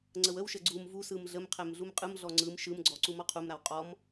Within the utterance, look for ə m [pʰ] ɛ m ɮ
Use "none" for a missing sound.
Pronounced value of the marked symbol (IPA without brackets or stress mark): qʰ